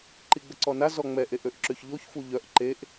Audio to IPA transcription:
ǃ i ɡ͡b ə ǀ ɔ n a z ɔ ŋ͡m ɛ ʔ e ʔ ø ʔ ǁ ø ç ʎ o ç f u ʎ œ ʔ ǃ e ʔ

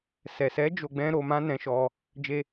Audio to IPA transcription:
s ɛ˨ s ɛ˨˦ d͡ʒ o˧ ɡ͡b ɛ̃˦ ɾ o˧ m ã˦ n ɛ̃˧ ʃ ɔ˧ | d͡ʒ e˧

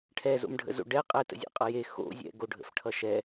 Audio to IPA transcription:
ʈʰ ɛ z o̰ m ɖʱ ə̰ z o̰ ɖ ɛ qʼ ɛ t ə̰ zʲ ɛ̰ qʼ ʌ j e x o̰ zʲ ɛ̰ ɡ o ɖʱ ə̰ f ʈʰ ʌ ʃ ɛ

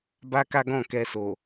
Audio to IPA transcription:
b a˦ k a˦ ɡ ɔ̃˦˨ k ɛ˧ s o˨

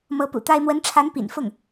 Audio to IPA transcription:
m ɤ˧˥ p ṵ˨˩ t̪ a˥ ɪ̯ m w ə˧˥ n ʈ͡ʂʰ a˧˥ n p ḭ˨˩ n f ʊ˥˩ ŋ

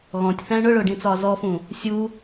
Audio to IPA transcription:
ɣ ɔ̃ tʲ θ æ̃ ɳ ʊ ɭ ʊː ɖ ĩ t͡s ɒː z ɔ f ũ | sʲ u

